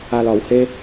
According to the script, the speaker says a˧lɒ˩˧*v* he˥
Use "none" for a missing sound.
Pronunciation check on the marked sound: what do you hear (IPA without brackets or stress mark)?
w